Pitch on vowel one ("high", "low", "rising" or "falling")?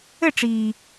falling